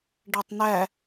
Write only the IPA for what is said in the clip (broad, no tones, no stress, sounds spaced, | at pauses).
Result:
ɖ æ tˤ n æ